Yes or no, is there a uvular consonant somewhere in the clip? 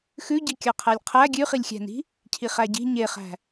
yes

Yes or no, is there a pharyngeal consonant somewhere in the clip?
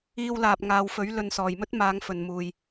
no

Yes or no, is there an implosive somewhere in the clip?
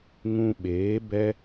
yes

